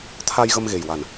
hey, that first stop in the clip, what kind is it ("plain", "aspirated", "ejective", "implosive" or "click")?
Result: aspirated